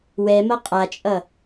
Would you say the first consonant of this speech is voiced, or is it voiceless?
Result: voiced